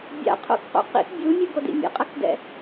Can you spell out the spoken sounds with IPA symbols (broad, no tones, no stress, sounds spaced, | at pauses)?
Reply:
bʲ a̰ qʰ o̰ k q ṵ q ḭ k bʲ u mʲ ɯ ɡ o d ḭ mʲ ɛ̰ qʼ ʌ k d ɛ̰